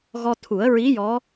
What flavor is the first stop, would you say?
aspirated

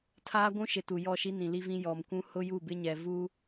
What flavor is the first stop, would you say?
aspirated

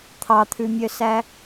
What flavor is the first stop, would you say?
aspirated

